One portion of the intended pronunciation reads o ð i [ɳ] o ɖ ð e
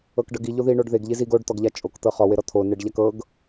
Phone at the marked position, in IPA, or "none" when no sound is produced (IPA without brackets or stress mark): ɳ